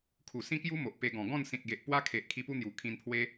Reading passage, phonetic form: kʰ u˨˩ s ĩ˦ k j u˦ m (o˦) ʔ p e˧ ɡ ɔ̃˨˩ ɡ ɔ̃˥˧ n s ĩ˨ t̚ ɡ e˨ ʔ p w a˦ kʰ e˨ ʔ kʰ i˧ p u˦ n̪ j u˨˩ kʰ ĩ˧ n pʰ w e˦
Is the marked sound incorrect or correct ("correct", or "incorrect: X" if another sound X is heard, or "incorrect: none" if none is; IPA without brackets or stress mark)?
incorrect: o˨